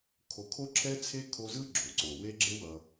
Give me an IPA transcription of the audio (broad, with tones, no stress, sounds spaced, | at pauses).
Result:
kʰ o˨ kʰ o˦ ǁʰ ɛ˦ t͡sʰ e˦ kʰ o˦ z ɯ˥ ɡ͡ǁ o˩ ǀ o˩ w e˦ ɡ͡ǁ e˦ w ʌ˨